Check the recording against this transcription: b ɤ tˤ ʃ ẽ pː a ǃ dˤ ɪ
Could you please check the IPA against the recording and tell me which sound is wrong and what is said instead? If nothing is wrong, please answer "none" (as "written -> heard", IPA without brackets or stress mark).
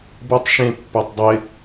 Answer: ǃ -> tˤ